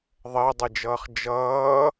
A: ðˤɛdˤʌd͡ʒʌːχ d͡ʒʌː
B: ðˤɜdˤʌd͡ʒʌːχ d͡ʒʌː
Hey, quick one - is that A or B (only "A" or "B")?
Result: B